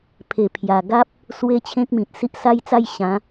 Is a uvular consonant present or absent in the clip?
absent